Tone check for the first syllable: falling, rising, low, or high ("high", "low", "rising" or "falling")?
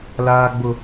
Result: high